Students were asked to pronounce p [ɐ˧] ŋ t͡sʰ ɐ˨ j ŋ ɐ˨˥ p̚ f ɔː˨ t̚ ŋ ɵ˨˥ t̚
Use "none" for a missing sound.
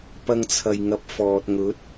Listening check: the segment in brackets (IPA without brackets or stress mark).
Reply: ɐ˧